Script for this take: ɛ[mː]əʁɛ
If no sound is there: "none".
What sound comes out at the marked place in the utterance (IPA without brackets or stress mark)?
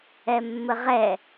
mː